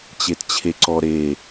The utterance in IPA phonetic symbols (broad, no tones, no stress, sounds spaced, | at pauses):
t͡ɕ e t t͡ɕʰ e ǀ ɔ ɾ e